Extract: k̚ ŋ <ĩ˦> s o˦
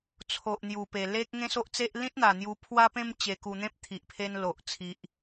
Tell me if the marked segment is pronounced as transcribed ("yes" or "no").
no